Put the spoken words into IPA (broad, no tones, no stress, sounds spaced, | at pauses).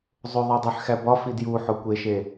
zˤ o ðˤ æ dˤ e ħ x æ b ɒ f i d j u ħ o kʷ e ʃ e